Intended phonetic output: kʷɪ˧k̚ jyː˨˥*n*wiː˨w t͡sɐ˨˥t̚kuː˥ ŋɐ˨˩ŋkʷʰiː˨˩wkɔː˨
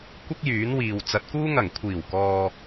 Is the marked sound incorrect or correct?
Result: correct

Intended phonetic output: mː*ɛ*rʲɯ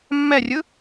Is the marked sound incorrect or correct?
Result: correct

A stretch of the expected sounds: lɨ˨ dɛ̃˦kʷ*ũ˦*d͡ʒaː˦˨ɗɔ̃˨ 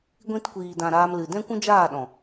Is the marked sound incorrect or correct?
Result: correct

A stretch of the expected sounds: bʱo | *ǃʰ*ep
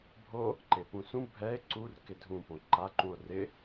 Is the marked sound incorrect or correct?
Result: incorrect: ǃ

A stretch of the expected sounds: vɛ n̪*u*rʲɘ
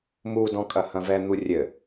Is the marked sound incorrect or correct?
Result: correct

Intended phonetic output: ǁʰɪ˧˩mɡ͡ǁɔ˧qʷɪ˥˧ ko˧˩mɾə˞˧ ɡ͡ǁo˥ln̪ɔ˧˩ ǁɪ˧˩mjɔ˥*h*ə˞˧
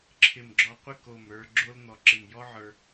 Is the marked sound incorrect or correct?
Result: incorrect: ʕ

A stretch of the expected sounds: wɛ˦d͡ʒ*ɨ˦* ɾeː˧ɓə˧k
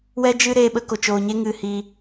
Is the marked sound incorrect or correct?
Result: correct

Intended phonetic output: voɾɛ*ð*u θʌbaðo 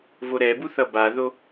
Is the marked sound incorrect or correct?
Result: incorrect: b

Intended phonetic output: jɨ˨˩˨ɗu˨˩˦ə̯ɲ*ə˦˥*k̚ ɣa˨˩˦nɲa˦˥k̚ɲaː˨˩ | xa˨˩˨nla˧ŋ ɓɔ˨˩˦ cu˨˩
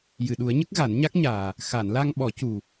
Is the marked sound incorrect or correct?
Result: correct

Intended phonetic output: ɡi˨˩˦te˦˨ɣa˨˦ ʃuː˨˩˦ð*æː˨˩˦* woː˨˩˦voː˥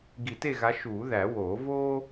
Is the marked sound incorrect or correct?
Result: incorrect: æ˨˩˦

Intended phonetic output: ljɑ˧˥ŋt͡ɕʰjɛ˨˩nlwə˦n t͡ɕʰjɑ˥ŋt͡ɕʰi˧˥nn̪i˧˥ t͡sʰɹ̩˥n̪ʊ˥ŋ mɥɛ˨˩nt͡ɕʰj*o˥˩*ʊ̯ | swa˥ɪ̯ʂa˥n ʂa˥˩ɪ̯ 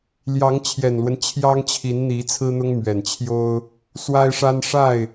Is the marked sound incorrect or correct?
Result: incorrect: o˥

